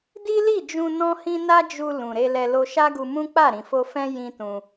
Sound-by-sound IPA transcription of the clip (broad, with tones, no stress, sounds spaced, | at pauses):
d i˦ l i˦˨ d͡ʒ ũ˧ n ɔ̃˦ h ĩ˦ n a˦ d͡ʒ u˧ l ũ˨ ɾ e˧ l ɛ˧ l o˧ ʃ a˦ ɡ u˧ m ũ˦ k͡p a˦˨ ɾ ĩ˨ f o˧ f ɛ̃˦ j ĩ˦ t ũ˧